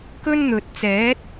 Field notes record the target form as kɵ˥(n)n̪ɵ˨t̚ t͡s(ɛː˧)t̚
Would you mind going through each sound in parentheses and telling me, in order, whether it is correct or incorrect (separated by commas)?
correct, incorrect